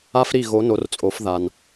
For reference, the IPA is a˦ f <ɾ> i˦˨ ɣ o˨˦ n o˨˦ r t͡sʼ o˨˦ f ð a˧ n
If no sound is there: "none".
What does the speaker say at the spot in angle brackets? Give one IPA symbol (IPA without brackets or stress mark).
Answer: ɾ